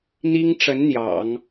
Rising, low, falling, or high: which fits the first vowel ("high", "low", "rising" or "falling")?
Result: high